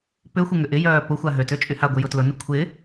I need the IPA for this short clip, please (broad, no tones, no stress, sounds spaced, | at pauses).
p ʏ xʷ ɪ ŋ ʏ ʔ ɪ j œː p ʊ xʷ a ɦ ø t ø t͡ʃʼ y h a ɡʷ ɪ j ʊ t l ʊ n ʏ kʷʰ ɪ